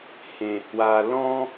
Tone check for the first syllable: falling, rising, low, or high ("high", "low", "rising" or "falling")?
low